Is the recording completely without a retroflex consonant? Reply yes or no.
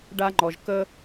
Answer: no